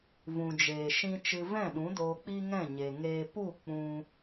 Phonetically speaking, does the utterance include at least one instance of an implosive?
yes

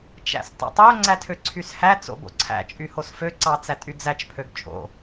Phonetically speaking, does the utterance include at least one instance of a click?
yes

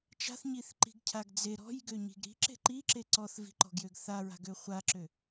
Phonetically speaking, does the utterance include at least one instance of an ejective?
no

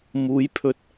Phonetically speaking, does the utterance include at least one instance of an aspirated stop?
yes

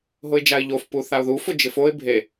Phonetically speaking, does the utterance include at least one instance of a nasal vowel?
no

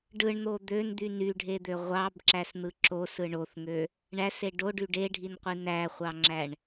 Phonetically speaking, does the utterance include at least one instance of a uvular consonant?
yes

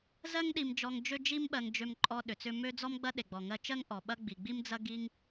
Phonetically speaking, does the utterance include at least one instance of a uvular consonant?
no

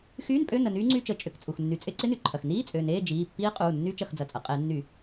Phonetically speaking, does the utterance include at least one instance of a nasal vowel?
no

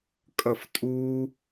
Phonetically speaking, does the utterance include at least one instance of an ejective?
yes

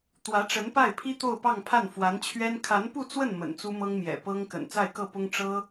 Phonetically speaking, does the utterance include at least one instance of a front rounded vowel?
no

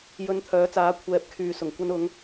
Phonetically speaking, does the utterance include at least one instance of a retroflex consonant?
no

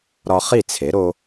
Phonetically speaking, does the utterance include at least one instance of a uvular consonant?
yes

